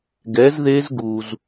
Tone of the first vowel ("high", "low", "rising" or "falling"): rising